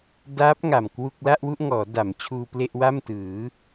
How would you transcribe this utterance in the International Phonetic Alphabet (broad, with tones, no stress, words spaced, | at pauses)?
daː˦˥p̚ ŋa˨˩mkwu˥˩k̚ la˥˩ʔwu˥˩ʔŋɔː˩˦da˩˦m t͡ɕʰuː˧ple˥˩ʔwa˥˩m tɯː˩˦